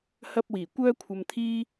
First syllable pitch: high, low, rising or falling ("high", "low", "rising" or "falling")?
high